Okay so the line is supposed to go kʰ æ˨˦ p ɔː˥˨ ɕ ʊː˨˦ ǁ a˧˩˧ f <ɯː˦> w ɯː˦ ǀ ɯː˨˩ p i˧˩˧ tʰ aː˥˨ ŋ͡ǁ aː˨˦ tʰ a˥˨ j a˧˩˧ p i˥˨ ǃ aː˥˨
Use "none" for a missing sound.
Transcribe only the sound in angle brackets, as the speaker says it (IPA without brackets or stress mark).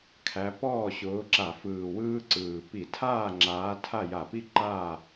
ɯː˨˩